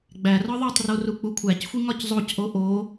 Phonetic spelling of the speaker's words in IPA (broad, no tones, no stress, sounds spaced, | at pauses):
ɡ͡b æ r ɒ ðˤ o tˤ r o r u k͡p u kʷʰ æ c xʷ i ŋ ɒ c zˤ o c ʔ o ʔ o